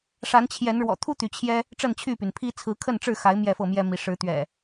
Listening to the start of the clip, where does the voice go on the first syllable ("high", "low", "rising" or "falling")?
rising